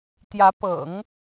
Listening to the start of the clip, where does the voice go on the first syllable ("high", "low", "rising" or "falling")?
rising